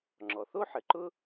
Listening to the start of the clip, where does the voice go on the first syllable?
low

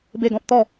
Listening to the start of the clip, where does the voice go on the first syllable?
falling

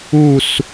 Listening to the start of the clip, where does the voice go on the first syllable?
falling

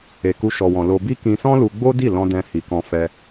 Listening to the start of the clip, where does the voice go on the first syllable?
low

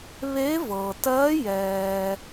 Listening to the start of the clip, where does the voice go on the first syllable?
rising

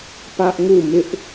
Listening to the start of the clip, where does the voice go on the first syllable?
high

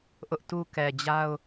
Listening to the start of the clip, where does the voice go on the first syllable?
high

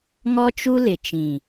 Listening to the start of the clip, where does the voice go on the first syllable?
high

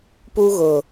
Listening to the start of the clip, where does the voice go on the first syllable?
high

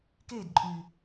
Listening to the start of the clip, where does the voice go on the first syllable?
falling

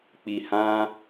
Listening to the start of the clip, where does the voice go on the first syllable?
low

